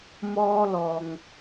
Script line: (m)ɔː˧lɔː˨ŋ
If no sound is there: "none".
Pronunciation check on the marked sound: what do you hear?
m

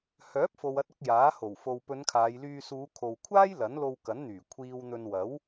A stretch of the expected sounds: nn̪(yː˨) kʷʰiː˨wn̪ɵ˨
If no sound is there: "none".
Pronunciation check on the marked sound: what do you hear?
yː˨˩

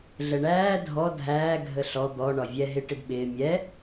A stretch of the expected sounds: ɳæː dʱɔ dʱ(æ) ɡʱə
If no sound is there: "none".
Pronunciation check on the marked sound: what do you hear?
æː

